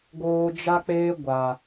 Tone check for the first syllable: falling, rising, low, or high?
low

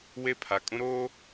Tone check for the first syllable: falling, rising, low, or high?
high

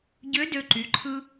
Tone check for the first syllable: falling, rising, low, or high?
rising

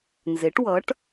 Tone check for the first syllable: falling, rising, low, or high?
rising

